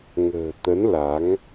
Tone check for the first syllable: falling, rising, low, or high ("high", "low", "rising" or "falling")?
low